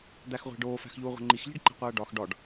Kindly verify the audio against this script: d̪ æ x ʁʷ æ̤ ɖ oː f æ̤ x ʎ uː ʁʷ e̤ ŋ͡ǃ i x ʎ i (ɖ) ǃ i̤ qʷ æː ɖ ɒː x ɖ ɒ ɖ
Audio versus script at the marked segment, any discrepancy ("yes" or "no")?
no